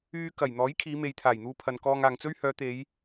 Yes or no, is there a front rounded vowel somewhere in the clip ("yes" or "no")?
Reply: yes